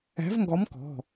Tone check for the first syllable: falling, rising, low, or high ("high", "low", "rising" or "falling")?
rising